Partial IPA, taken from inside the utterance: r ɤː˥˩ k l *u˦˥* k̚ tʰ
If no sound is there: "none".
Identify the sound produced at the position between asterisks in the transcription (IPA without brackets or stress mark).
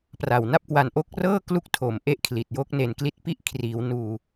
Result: u˦˥